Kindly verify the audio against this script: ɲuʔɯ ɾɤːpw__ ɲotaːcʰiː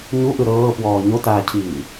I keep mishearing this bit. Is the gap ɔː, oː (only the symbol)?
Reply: ɔː